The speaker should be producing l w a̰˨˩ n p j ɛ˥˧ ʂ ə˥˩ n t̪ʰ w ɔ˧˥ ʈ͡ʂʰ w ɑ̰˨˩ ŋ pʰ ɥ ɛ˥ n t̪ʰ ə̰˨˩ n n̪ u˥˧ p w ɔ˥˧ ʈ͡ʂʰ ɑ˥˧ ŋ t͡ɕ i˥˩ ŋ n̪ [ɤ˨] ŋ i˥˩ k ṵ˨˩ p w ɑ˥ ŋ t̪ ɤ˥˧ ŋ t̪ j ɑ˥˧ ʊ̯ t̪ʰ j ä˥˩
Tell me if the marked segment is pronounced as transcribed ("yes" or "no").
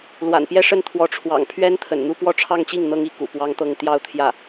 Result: no